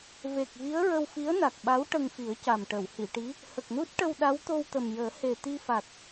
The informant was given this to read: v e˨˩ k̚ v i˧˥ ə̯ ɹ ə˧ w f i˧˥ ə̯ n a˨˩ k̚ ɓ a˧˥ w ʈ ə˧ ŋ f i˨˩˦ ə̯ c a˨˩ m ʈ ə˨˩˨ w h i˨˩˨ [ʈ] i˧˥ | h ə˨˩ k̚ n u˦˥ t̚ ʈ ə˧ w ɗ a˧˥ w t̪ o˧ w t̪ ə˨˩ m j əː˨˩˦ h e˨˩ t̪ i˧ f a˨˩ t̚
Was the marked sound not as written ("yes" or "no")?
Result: no